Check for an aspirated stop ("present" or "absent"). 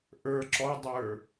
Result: absent